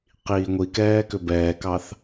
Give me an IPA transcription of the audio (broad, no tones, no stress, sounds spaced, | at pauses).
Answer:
q iː ŋʷ i k ɛː k ʏ b ɛː k ɑ θ